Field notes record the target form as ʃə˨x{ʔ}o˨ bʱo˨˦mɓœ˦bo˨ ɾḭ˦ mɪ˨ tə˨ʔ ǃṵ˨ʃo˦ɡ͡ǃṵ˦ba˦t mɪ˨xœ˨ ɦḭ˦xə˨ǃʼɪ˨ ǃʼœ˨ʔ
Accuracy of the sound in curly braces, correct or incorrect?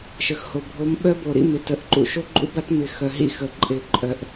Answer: incorrect: h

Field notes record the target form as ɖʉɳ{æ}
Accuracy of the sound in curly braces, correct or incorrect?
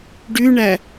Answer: correct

